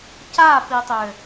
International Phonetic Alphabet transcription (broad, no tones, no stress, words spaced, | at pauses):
capitˤø